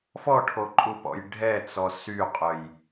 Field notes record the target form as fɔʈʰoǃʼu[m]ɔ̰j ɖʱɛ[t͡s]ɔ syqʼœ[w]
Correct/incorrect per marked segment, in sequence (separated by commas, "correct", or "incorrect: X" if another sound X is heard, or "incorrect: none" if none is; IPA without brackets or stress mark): incorrect: p, correct, incorrect: j